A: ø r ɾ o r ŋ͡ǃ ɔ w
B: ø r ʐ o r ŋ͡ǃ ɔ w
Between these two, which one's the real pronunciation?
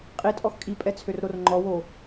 A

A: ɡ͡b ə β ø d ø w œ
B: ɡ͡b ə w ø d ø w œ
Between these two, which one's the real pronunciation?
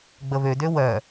A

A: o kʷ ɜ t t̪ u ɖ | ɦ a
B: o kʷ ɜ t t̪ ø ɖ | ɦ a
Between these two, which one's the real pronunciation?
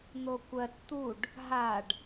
A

